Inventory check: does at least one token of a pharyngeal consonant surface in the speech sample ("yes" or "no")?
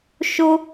no